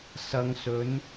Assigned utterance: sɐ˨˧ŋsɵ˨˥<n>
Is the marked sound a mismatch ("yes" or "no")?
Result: no